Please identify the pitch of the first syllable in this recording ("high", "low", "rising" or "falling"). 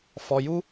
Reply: low